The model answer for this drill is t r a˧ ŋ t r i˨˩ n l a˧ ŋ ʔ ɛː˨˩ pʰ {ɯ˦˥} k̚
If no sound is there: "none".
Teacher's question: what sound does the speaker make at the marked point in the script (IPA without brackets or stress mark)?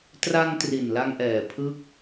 ɯ˦˥